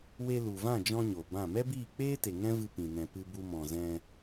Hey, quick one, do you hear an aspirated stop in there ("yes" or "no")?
no